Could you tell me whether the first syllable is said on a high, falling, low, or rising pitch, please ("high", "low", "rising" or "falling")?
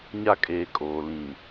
high